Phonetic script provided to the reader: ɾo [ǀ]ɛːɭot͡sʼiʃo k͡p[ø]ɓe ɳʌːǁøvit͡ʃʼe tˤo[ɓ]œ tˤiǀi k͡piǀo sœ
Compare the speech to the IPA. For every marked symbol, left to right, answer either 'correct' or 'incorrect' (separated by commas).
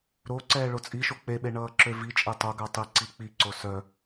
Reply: correct, incorrect, incorrect